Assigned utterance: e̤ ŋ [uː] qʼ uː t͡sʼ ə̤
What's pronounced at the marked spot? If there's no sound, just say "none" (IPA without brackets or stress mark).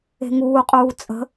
uː